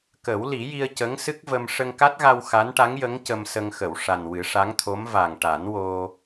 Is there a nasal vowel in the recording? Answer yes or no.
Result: no